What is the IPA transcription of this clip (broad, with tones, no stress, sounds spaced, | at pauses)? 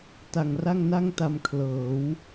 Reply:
t a˨˩ ŋ r a˥˩ ŋ n a˥˩ ŋ t a˧ m kʰ l ɤː˩˦ w